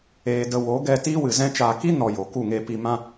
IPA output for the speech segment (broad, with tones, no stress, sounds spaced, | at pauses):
eː˧ d ə˧ w o˨˦ ɡ ɛ˧ t iː˦ w ɨ˨ z ɛ̃˦ t͡ʃ aː˧ k i˦ n ɔ˨ j o˨ k u˦˨ ŋ eː˧ p i˧ m ã˧